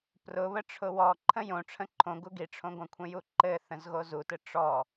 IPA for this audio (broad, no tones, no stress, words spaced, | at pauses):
prʊβə ʈ͡ʂʰʊwɔ ǃʰə̃jõ ʈ͡ʂʰə̃ǃʰõ ɡuɡiʈ͡ʂʰõɡʷə̃ kʷʰə̃juǃɘ θə̃zɣozutɘ ʈ͡ʂɔ